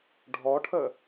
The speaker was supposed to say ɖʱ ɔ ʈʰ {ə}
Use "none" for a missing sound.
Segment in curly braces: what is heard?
ə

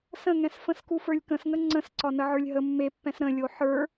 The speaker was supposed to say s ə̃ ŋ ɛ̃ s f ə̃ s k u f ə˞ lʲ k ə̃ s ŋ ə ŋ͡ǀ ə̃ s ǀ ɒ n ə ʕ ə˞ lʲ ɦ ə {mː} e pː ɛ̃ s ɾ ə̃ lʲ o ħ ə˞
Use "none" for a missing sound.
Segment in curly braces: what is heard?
mː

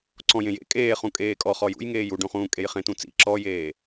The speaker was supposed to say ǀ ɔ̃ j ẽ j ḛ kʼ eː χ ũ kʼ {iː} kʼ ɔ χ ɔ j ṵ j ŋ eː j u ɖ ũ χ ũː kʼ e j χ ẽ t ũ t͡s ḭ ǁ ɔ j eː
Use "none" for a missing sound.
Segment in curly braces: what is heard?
eː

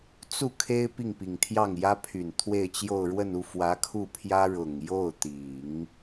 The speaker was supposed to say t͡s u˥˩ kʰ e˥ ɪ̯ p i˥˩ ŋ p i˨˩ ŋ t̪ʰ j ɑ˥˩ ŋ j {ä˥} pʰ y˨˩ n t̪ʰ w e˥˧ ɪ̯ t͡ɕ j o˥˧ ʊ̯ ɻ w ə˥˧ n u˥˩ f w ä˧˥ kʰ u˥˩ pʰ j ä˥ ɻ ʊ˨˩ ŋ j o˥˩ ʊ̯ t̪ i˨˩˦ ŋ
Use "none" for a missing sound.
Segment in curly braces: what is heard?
ä˥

